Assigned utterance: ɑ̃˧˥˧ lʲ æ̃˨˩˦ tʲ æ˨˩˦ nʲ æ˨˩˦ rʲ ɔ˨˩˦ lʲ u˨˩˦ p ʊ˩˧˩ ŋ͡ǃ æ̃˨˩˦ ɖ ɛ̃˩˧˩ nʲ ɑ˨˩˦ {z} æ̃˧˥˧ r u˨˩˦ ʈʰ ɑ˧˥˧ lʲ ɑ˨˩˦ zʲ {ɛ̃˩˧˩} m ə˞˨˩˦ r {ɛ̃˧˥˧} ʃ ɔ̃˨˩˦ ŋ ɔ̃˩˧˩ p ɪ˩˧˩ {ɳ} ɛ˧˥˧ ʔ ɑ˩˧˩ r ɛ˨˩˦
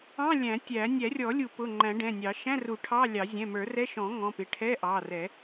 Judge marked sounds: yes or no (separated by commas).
no, yes, no, no